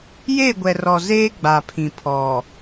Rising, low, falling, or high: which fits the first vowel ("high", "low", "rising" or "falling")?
falling